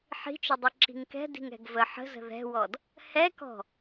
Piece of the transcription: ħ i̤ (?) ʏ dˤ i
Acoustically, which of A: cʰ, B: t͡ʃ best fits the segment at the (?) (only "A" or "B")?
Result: B